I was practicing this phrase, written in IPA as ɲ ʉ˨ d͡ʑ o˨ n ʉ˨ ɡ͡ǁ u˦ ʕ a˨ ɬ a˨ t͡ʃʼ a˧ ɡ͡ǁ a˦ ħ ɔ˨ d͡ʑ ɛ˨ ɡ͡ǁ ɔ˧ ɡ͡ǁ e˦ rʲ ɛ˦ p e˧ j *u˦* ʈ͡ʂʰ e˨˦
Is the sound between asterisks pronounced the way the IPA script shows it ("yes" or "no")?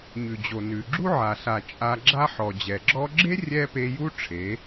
yes